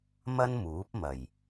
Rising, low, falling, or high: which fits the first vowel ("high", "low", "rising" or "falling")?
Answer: high